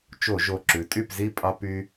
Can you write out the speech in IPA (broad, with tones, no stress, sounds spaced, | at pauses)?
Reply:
t͡ʃ o˧˩˧ ʒ o˨˩ ǁ ʉ˩˧ tʼ y˥˨ p z i˥˨ pʼ ɑ˦ p y˦